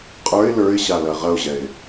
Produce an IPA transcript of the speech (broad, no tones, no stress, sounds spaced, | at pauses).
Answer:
qʼ ə˞ ɪ̯ l ə˞ ɪ̯ ɕ a l ɐ ʁ ɐ ʊ̯ ʑ ɛ ɪ̯